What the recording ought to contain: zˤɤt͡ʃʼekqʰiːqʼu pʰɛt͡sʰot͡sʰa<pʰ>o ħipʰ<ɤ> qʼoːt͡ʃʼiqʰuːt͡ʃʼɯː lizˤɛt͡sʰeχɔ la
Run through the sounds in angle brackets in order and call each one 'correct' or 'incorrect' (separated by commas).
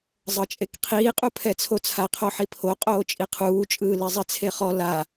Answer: incorrect, incorrect